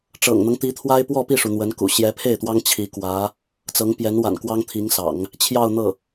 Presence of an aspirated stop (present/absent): present